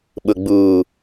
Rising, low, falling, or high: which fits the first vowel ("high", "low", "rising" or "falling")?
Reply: low